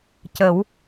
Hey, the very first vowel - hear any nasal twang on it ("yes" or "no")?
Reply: no